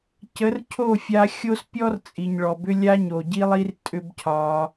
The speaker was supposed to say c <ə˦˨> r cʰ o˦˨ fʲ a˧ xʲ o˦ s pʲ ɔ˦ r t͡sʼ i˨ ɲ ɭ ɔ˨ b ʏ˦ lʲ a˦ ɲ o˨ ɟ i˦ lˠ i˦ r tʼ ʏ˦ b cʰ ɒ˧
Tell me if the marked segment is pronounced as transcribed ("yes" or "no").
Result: no